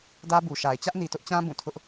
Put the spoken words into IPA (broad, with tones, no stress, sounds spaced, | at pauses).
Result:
d ä˦ b u˨ ʃ a˨ ɪ̯ t͡ɕ ä˦ ʔ n i˨ t ʊ˦ ʔ t͡ɕ ã˦ b ũ˦˨ tʰ ʊ˦ ʔ